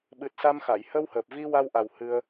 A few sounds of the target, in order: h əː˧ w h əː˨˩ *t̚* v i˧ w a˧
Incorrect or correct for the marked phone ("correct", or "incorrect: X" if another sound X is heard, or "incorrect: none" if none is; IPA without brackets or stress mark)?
incorrect: p̚